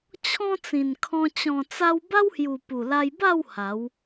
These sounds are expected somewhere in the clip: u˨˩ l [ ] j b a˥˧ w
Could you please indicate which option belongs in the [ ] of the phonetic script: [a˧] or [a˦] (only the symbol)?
a˧